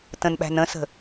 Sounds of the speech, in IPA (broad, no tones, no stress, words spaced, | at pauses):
tə̃nɓæ̤n ə̃sə̤